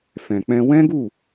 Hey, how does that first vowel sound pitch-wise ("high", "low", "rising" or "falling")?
low